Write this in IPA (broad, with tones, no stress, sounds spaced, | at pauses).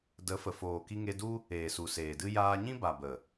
d ə˨˦ f ə˨ f oː˨ k i˧ ŋ e˧ d u˦ | eː˨ s u˨ s eː˨ d ɨ˦ j aː˧ ɲ ĩ˦ b a˨ b ə˨